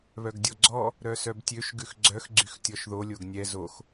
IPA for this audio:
β œ ɡ dʲ ɔ ɡ͡ǀ ɔ | ɾ œ s œ b tʲ ø ʃ ɡ ʉ x ɡ͡ǀ œ x ɡ͡ǀ y x tʲ ɔ ʃ ð o lʲ o ɡ nʲ ɛ z o x

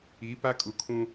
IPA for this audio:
i˨˦ p a˦ kʼ u˨ kʰ ũ˦

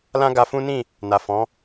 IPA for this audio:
l ã˦ ɡ a˧ f ũ˦ n ĩ˦˨ | n a˨ f ɔ̃˨˦

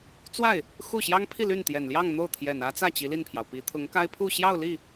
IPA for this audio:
t͡s w a˥˩ ɪ̯ | x u˥˩ ɕ j ɑ˥ ŋ pʰ i˥˧ l y˥˩ n t̪ j ɛ˨˩ n l j ɑ˥˧ ŋ n̪ o˥˩ ʊ̯ t̪ʰ j ɛ˨˩ n ä˥ t͡s ä˥˩ t͡ɕ i˧˥ l i˥˩ n pʰ j ɑ˩ ʊ̯ p i˧˥ t̪ʰ ʊ˧˥ ŋ k a˥ ɪ̯ pʰ u˥˧ ɕ j ɑ˥˧ ʊ̯ l i˥˩

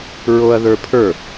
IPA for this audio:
ɹ o ɐ̯ ð ə˞ pʰ ə˞

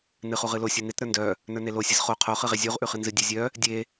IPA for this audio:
n ɨ χ u ʁ ɨ l o sʲ u n e t ɾ ə˞ n d œ | n ə˞ n e l o sʲ ɨ z χ o qʰ o χ ɨ ʁ e zʲ u ʁ ʔ ʉ χ ɨ n z ɨ dʲ e zʲ œ | dʲ e

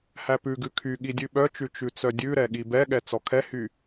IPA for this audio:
h æ p ʉ ɡ ʉ kʰ y ɠ i dʲ ʉ ɓ œ t͡ʃ ʉ t͡ʃ ʉ t͡s œ dʲ ʉ ɾ ɛ ɠ i b ɛ ɠ ɛ t͡s ɔ kʰ ɛ h y

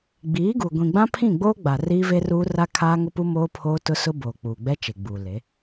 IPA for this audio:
ɡ͡b iː˨˦ ɡ u˨ ɡʷ ĩ˨ ɡ͡b ã˦ pʰ ĩ˦˨ ɡ͡b oː˦ ɡ͡b a˨ r iː˦ v e˦ r uː˦ r a˦ kʰ aː˦ ŋ ʊ˦ p u˦ m oː˦ pʰ oː˦ t ʊ˦ s ʊ˦ b oː˨ k͡p uː˨ ɡ͡b ɛ˦ t͡ʃ e˨ ɡ͡b uː˨ l e˨˦

